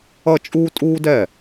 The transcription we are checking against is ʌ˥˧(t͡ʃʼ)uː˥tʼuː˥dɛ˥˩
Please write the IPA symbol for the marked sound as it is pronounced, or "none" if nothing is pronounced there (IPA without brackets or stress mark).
t͡ʃʼ